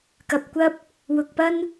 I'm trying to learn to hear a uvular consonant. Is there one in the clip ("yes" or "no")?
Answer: no